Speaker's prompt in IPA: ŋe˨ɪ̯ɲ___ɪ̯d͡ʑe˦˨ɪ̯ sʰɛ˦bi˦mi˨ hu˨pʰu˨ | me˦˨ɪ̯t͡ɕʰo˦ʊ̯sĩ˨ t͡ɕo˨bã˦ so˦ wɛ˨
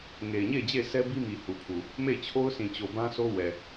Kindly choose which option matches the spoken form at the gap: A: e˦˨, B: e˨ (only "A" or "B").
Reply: A